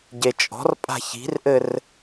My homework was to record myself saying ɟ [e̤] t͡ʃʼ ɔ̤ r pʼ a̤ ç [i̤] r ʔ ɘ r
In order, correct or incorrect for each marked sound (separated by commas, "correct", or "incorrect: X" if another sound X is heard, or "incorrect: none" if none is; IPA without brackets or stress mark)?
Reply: incorrect: e, correct